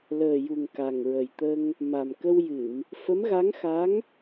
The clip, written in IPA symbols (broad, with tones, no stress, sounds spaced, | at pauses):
l əː˨˩ j u˨˩ ŋ k a˨˩ ŋ ɹ ə˨˩ j t̪ ə˧ ŋ | m a˨˩ m k ə˧ w j ɨ˨˩˨ m | f ə˧˥ m ɣ a˧˥ ŋ x a˧˥ ŋ